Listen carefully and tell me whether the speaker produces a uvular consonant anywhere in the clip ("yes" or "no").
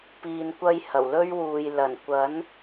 no